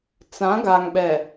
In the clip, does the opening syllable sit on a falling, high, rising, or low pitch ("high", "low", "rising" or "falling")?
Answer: rising